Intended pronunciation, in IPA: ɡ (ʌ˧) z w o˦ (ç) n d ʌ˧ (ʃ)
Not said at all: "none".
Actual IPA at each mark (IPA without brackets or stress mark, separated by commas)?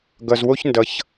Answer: ʌ˧, ç, ç